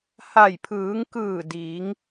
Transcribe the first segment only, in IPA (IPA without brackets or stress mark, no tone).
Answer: h